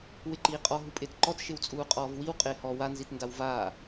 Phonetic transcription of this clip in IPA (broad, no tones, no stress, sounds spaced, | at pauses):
w ɪ ǃ iː qʼ ɔ ɦ u pʼ ɪː t ǃ ɔ t ʃ ɪ w t͡sʼ uː qʼ ɔː v w i w qʼ ɪː h ɔ w a n z i t n d a w v aː